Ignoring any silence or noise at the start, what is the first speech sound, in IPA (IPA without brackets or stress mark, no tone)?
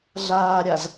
ɮ